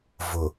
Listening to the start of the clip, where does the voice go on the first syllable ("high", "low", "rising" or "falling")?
low